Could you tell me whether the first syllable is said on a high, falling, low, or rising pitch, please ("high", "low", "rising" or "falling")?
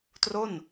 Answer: falling